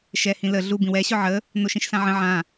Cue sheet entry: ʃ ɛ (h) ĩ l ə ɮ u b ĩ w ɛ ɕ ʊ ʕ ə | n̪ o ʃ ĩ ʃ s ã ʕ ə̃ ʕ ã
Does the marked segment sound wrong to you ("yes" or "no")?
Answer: no